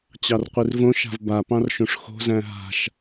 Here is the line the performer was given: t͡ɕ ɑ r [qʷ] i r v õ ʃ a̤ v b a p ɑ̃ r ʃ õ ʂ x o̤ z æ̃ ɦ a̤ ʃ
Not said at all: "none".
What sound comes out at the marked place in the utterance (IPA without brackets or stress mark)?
qʷ